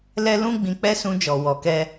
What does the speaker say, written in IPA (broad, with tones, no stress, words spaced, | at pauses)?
lɛ˦lũ˦ ɡ͡bĩ˧k͡pɛ˦sũ˧d͡ʒɔ˨ wɔ˨kɛ˧